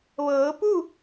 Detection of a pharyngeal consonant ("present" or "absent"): absent